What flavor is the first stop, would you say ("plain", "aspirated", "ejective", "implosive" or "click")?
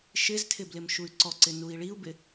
aspirated